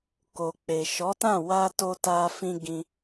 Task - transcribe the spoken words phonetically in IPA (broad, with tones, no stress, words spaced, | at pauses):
ko˨k͡pe˨ ʃɔ˨˦tã˦˨ wa˧to˧ ta˧fĩ˧ ɡĩ˦